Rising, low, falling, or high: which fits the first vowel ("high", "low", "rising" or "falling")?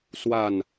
falling